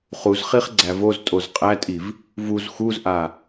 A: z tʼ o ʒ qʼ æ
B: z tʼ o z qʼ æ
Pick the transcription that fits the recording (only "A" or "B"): B